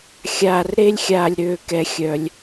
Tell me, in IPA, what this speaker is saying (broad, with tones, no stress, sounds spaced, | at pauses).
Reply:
xʲ aː˨ r ɾ e˥ lʲ xʲ aː˨ lʲ ɾ øː˨ k ɛ˨ xʲ œ˩ lʲ